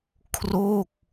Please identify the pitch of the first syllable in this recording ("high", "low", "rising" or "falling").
falling